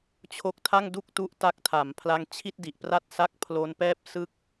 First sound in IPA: t͡ɕʰ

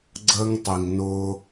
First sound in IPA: ɡ͡ǀ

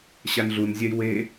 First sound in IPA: ɕ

